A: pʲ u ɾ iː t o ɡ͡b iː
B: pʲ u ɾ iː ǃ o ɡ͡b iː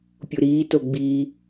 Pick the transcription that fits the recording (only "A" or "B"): A